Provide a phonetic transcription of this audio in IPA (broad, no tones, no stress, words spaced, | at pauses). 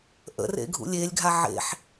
ʔə̰rḛ ɡʱṵlʲelʲɡʱa ʕḛħ